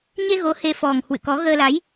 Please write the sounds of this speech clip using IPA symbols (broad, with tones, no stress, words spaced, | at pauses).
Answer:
ɲe˧ ɣo˨˦ he˧fɔ˨˩ŋ hwɨ̰˧˨kɔ˨˦ ɣəː˧la˨˦j